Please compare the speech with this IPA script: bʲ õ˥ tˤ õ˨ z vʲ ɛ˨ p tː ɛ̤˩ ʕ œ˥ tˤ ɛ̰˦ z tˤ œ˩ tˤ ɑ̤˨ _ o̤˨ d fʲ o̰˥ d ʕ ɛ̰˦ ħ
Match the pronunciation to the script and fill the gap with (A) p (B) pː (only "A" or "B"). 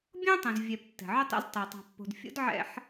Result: B